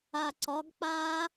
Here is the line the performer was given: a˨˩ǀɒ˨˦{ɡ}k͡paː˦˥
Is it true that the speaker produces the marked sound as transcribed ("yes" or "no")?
yes